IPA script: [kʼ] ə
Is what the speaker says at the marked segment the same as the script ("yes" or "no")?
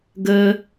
no